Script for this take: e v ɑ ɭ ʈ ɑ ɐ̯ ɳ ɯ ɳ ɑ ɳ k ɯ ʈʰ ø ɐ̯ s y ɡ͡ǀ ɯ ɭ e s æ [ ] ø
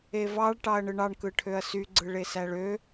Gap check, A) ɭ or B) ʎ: A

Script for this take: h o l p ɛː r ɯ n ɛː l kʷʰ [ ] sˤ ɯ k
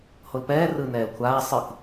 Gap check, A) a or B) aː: B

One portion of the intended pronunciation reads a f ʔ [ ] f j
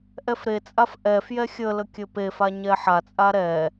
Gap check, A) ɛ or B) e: A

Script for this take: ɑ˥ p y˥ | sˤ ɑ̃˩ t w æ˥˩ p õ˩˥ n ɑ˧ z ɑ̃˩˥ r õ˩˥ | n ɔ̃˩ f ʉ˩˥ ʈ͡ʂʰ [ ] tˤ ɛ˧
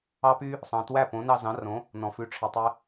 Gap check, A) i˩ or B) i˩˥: A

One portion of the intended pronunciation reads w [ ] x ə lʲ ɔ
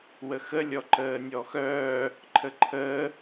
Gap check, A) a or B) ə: B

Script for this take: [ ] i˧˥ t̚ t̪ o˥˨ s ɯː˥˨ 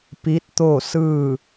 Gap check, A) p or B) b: A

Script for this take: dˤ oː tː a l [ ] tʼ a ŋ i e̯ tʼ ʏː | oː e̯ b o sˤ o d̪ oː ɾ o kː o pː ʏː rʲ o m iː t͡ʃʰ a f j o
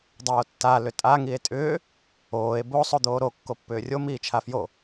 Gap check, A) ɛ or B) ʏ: B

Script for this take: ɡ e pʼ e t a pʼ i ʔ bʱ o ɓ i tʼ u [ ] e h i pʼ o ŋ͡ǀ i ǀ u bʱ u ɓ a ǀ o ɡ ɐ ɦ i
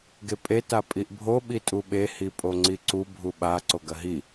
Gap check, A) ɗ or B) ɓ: B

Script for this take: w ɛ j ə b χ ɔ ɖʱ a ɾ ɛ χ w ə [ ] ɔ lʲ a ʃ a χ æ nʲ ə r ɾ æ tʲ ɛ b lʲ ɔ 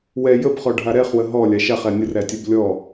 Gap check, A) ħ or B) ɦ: B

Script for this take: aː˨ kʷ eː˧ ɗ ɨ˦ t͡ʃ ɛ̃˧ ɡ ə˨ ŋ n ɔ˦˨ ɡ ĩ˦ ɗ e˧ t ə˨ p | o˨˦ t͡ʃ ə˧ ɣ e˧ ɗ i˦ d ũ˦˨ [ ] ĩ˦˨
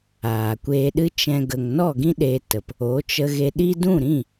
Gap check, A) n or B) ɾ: B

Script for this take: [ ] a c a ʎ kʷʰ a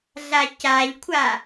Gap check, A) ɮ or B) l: A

